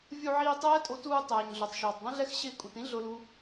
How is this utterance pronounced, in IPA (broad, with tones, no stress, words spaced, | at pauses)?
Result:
vʲu˧ʕiː˧ tˤɛː˦tʼo˧ tuː˧tˤɛː˨ɲɮo˨tˤ ʃuː˨tˤdˤĩ˦ɮɛ˦x ɕɪː˧kʼu˨tĩ˦ ɮʊ˦lu˦